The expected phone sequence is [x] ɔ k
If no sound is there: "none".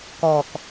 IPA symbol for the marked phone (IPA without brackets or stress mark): k